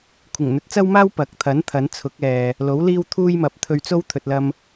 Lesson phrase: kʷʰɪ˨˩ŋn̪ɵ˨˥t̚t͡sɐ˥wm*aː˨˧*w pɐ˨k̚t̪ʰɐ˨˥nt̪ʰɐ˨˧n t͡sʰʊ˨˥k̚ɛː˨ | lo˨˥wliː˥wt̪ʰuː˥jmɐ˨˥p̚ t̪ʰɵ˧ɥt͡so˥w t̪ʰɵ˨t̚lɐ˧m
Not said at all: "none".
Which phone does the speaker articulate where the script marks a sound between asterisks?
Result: aː˥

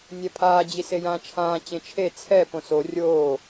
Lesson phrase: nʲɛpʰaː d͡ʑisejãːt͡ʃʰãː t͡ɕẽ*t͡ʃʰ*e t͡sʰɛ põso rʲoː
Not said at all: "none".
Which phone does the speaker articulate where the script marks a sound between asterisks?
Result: t͡ʃʰ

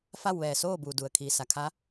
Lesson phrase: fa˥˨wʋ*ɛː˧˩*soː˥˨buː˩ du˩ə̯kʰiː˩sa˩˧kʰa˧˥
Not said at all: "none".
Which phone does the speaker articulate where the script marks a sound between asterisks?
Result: ɛː˧˩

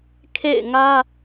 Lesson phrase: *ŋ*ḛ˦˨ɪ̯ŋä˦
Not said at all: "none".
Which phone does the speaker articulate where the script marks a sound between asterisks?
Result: kʰ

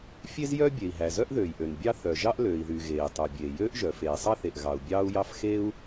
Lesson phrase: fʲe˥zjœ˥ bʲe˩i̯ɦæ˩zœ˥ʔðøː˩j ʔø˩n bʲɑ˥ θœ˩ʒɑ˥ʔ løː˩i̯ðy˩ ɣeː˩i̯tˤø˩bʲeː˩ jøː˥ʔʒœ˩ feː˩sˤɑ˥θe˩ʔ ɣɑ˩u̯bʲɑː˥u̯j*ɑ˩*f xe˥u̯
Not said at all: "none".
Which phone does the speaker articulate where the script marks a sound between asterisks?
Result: ɑ˥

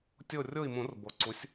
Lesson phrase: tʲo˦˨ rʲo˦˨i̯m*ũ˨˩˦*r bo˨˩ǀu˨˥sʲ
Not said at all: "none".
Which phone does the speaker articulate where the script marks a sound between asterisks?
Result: ũ˨˩˦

